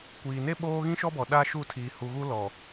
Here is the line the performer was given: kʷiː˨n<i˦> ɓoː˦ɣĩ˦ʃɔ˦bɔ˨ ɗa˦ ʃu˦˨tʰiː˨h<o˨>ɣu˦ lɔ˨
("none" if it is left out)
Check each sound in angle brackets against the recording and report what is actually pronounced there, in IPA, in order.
e˦, u˨

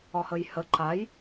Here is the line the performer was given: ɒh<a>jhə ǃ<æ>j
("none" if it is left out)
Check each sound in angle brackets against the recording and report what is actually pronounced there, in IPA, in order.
ə, a

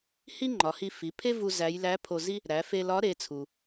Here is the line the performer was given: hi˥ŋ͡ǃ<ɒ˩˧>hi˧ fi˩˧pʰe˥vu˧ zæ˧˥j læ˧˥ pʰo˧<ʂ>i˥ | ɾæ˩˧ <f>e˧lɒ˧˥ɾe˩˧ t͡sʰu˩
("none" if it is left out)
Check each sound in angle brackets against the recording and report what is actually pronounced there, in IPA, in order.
ɒ˩˧, z, f

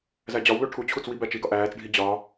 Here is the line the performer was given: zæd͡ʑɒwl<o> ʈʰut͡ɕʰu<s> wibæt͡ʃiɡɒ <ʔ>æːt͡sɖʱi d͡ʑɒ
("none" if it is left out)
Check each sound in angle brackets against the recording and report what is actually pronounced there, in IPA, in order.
o, t͡s, ʔ

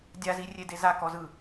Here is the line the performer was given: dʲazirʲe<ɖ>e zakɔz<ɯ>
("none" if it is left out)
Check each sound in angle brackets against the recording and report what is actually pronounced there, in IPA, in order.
d, ɯ

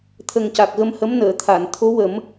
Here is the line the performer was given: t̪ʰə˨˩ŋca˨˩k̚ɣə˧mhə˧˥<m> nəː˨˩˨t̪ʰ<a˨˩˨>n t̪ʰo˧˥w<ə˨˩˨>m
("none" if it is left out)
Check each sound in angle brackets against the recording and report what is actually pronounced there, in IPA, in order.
m, a˨˩˨, ə˨˩˦

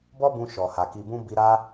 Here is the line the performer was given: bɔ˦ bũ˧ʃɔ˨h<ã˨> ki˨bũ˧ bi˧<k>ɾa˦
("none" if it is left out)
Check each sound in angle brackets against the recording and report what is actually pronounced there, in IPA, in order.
a˨, none

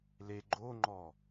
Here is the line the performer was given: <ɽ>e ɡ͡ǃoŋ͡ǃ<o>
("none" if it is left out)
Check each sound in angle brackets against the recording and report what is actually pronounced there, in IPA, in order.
l, ɔ

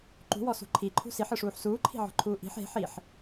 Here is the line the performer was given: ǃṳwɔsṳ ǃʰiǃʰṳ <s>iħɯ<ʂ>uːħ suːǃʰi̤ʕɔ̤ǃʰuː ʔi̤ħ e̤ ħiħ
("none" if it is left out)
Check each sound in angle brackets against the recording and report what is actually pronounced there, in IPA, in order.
s, ʂ

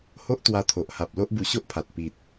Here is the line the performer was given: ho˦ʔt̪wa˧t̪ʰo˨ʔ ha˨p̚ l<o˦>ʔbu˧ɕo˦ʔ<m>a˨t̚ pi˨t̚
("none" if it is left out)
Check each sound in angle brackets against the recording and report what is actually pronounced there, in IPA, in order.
o˦, pʰ

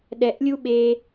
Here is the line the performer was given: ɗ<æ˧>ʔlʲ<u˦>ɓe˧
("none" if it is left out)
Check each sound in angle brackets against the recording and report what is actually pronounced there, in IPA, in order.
ɛ˧, u˦

